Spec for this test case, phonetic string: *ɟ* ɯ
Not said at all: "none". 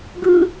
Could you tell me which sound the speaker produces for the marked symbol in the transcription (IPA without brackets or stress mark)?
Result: ɡ